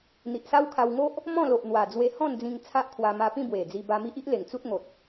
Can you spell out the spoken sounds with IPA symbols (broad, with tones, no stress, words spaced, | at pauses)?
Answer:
n̪i˨ʔsa˦wkʰa˧wŋo˦ʔ | mɔ̃˥˧lo˨ʔn̪wa˨˩ d͡zwe˧hɔ̃˥˧n d͡zĩ˧ŋt͡sʰa˦ʔkʰwa˧ ma˧pĩ˥˧bwe˨˩d͡zi˧ ba˧mi˦ʔ i˦ʔle˨˩ŋ t͡su˦t̚ŋo˨t̚